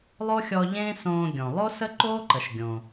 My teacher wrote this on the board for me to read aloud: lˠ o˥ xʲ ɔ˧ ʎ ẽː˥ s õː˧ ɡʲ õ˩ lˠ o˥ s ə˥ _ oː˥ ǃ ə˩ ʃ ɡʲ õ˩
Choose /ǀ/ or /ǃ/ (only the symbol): ǃ